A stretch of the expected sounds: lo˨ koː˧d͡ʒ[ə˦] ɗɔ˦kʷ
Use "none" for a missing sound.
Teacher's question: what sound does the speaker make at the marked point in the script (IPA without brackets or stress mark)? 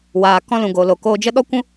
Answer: ə˦